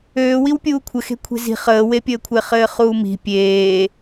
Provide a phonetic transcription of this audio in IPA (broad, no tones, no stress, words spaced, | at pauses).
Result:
øːwiw pʲuːkʷʰə xe̤kʷʰe̤zi̤ χəːwepʲəːkʷʰɪː χɘːχuːmi̤ pʲeː